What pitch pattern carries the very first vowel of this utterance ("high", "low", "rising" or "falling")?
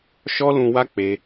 high